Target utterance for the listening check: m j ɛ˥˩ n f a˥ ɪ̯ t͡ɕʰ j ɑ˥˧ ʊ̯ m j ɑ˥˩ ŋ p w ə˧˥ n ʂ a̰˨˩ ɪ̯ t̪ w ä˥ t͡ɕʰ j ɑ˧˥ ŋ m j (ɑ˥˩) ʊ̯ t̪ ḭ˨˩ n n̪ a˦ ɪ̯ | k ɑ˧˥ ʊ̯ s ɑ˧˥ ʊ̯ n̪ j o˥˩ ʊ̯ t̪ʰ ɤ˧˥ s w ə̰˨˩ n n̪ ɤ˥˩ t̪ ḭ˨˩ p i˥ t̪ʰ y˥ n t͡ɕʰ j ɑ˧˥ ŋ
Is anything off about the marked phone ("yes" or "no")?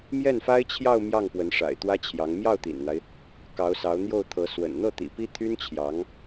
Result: no